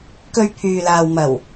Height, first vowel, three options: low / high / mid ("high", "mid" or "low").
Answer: mid